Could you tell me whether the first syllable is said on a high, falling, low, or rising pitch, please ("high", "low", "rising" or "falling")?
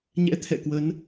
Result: rising